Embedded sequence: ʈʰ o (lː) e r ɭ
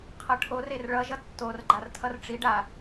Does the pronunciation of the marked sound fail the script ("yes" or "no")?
yes